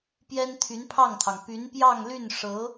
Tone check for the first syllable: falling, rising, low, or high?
high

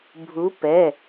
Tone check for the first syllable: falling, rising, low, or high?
rising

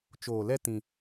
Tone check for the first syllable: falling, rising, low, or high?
low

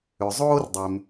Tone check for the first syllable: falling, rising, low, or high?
low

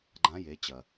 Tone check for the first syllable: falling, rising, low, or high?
rising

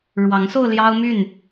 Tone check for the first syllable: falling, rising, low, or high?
rising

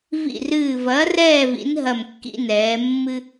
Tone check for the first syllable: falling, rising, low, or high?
falling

